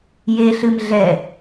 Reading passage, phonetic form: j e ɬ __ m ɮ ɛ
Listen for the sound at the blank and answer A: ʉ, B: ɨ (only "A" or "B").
B